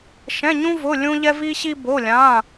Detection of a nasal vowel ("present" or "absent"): present